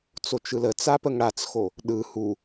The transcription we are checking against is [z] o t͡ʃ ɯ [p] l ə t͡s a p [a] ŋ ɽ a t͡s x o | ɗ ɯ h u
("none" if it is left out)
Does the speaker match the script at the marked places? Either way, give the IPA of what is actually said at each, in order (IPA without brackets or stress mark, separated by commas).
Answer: t͡s, none, ə